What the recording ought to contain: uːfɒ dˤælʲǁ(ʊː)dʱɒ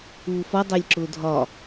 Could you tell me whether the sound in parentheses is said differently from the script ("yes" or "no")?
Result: no